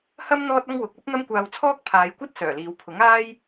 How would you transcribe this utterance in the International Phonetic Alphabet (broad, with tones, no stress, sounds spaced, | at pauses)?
h ɐ˥ m n̪ ɔː˥ t̚ ɐ˥ ŋ w ʊ˨ k̚ ɐ˥ p̚ n̪ ɐ˥ m kʷ aː˧ w t͡sʰ ɔː˥ k̚ pʰ aː˨˧ j kʷ ɐ˥ t̚ s œː˨˩ l iː˨˧ w pʰ ʊ˨˥ ŋ aː˥ j